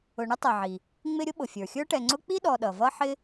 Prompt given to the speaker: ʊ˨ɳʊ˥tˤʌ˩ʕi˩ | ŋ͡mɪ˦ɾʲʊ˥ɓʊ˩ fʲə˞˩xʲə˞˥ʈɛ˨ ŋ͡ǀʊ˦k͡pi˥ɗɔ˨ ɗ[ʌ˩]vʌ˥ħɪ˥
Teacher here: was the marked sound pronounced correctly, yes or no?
yes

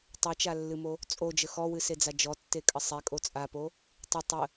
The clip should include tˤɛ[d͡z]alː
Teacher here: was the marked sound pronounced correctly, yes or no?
no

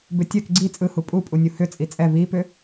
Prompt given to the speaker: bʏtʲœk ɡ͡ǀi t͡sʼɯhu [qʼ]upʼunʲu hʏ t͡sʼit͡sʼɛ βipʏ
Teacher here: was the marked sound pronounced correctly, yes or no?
no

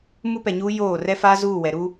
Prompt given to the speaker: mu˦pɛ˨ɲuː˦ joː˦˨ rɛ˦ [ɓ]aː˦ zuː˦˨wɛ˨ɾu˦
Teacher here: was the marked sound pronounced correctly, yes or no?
no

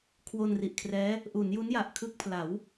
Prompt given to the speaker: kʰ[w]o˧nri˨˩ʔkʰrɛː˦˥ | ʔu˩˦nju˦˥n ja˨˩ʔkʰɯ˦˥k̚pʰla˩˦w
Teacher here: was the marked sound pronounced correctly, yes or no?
yes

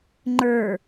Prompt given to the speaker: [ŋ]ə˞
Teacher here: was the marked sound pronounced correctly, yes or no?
no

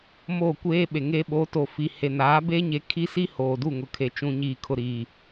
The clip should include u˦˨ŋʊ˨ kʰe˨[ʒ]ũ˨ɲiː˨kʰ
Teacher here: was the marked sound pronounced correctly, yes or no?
no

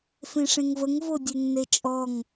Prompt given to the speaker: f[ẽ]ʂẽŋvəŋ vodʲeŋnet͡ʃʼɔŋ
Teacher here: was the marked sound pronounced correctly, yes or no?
yes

